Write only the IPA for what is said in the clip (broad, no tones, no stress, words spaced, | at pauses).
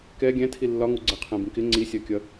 kɛ ɡʲæ̃tʰi lːɒŋuɡ͡ǀɜ qʰæ̃bĩkɪ ŋ͡ǀisʲɜkʲʌ